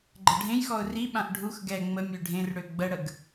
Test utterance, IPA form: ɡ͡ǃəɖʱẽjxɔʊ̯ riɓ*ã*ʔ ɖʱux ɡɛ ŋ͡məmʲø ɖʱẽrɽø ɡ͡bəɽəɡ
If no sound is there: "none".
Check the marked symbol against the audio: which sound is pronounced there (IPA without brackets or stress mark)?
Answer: ã